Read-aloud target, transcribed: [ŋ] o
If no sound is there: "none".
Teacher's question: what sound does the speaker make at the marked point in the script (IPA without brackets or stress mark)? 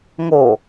ŋ